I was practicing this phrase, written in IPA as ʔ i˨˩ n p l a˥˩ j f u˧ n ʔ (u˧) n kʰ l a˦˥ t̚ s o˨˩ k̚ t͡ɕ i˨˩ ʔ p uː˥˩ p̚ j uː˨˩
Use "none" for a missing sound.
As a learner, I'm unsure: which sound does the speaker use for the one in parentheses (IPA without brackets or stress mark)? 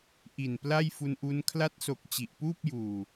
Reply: u˦˥